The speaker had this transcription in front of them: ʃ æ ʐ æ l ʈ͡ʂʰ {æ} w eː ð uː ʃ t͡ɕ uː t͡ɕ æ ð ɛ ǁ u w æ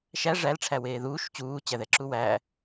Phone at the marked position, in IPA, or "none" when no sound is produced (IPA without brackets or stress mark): æ